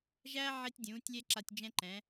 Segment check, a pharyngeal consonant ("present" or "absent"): present